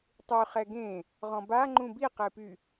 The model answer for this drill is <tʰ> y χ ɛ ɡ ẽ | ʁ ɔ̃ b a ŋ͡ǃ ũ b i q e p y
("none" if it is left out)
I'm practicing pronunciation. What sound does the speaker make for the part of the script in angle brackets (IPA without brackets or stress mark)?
tˤ